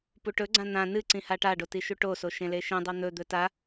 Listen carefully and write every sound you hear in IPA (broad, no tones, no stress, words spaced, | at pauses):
puʈɵɡ͡ǀã n̪ã nɨ ǀĩhaʈaɖo tiʃuʈoso ʃẽleʃĩdˤo n̪ɵd̪ɵ ta